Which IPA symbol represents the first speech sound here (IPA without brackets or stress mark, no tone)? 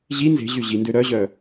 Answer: ʑ